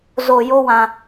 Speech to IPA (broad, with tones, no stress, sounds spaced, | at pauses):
z o˨ j o˦ w ã˧